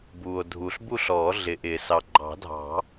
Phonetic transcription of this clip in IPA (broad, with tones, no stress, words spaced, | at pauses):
buː˨o̯dʱu˨ɬ bu˥˨ɬɔː˨˩˦ ɮɪ˨ʔɪː˨˩˦sɑ˨ ɡ͡ǃɑ̤˨˩˦dʱɑ̤˨˩˦